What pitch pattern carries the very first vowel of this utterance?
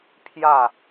falling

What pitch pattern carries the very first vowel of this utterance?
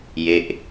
falling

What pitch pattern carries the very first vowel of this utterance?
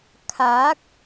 rising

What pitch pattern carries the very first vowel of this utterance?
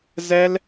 high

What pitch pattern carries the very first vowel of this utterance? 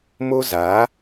high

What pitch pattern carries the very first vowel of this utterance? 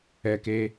high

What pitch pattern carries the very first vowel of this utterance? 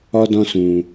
high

